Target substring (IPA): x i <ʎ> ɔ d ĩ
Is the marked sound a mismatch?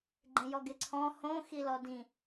yes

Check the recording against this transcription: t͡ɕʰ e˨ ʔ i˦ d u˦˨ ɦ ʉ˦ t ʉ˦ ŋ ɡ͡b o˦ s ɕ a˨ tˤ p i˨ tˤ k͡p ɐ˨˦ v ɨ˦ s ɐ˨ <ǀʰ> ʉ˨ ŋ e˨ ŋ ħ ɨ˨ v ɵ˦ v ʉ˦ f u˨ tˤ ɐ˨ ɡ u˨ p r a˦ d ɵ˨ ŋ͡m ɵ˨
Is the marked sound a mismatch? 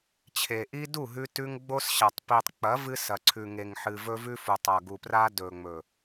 no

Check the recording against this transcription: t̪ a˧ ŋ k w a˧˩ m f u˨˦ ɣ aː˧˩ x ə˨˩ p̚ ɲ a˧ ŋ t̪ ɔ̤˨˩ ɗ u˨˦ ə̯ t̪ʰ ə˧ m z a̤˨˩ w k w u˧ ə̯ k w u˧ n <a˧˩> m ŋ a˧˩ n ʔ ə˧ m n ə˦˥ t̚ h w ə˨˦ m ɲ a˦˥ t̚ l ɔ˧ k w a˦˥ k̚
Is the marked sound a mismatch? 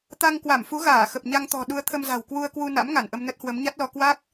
yes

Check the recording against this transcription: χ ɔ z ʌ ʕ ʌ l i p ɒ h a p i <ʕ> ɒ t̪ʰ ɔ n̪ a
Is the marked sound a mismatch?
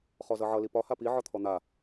no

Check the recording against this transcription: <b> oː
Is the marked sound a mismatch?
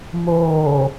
yes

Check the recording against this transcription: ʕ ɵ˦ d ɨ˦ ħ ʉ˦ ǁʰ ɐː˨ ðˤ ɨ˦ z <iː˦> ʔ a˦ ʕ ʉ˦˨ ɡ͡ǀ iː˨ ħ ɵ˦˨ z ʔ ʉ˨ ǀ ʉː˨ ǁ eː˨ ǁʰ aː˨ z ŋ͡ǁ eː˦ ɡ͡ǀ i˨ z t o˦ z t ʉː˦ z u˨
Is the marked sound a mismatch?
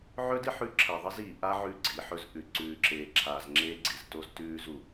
yes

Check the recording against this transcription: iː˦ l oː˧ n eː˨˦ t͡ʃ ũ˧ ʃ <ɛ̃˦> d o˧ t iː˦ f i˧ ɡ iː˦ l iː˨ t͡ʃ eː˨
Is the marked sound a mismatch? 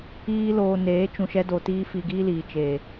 yes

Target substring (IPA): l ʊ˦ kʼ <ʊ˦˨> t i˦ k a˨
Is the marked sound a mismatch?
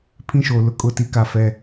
no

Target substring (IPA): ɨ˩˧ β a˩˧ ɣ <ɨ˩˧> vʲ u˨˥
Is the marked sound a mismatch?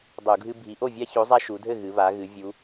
no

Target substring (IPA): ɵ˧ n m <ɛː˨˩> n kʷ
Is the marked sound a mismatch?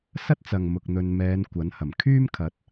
yes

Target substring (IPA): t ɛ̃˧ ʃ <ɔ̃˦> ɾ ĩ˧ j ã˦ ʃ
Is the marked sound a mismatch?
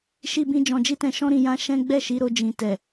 no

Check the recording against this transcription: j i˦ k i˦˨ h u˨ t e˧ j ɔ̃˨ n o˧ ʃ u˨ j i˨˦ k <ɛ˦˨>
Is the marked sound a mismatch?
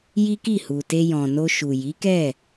no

